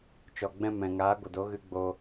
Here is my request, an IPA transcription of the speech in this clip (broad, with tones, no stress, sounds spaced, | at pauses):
t͡ʃ ɔ˨ ɡ͡b ɛ̃˧ m ɛ̃˨ ŋ aː˨˦ ɡʷ ə˨ d o˨˦ ɣ ɨ˧ ɡ͡b o˧